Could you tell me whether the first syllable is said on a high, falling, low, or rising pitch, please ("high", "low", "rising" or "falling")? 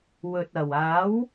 low